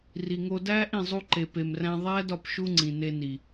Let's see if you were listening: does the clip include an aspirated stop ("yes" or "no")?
no